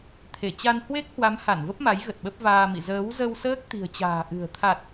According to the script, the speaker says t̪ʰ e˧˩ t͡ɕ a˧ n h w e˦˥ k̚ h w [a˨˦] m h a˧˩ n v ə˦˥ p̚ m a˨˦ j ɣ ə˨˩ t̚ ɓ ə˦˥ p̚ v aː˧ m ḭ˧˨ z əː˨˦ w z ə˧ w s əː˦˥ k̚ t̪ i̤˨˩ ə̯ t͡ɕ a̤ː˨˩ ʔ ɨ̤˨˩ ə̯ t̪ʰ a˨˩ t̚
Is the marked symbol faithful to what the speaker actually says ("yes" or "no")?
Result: yes